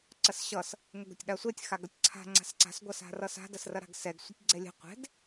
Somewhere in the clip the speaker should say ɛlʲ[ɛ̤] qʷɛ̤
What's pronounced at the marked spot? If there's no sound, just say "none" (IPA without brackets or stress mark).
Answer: ɛ̤